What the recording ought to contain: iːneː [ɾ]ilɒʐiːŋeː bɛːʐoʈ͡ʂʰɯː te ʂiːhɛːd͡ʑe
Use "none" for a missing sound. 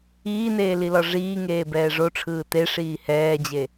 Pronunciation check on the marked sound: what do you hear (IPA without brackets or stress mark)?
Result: l